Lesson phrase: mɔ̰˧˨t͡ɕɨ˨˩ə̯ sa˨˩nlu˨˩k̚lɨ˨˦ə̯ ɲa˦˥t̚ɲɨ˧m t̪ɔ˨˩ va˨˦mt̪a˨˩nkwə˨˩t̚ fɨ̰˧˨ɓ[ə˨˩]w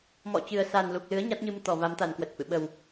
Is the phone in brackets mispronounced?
no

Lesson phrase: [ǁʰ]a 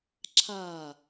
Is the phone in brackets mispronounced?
no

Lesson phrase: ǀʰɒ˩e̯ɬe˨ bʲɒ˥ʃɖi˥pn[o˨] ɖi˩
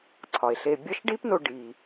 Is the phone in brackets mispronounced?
no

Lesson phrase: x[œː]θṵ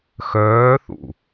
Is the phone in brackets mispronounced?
no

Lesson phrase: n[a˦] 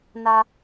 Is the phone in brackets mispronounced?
no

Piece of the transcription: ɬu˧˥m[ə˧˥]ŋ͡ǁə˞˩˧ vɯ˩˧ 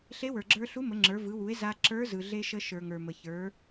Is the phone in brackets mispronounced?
yes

